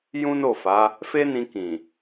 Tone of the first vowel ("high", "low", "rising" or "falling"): high